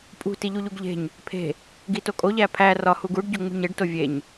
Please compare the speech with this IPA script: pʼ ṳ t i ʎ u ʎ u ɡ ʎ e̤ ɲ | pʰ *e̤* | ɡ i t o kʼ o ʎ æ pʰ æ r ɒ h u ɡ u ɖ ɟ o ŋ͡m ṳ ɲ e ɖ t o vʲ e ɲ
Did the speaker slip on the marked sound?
no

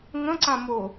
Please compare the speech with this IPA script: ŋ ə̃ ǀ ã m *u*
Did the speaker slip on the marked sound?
yes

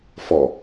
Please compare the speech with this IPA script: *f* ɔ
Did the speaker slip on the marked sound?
no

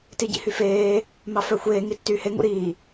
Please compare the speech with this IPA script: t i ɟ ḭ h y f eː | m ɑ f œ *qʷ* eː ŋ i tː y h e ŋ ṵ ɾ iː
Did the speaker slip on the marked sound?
yes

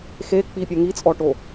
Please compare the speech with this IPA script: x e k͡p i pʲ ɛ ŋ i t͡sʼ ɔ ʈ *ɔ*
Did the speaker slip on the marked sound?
yes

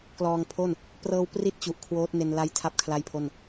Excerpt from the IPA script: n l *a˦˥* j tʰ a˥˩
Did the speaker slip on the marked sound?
no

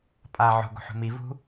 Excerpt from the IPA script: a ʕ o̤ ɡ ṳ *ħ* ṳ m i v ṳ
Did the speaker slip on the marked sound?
no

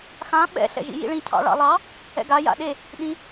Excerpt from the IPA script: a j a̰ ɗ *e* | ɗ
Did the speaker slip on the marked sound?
no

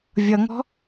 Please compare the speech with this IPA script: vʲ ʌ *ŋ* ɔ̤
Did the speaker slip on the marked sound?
no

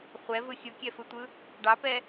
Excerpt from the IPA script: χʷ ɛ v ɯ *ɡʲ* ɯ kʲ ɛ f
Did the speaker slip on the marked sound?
yes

